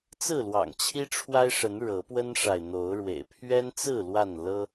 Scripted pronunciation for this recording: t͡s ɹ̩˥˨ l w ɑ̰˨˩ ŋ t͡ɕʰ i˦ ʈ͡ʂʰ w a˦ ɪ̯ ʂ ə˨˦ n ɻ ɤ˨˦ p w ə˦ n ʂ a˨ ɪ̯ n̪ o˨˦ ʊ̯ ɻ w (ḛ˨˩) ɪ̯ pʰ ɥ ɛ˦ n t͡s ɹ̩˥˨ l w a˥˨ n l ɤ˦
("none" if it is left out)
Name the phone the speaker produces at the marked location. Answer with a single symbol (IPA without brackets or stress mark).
ḛ˨˩